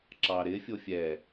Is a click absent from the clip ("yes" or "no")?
no